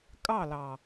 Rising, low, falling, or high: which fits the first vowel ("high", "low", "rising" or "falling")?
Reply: falling